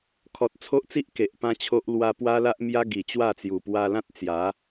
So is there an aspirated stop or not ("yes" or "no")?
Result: yes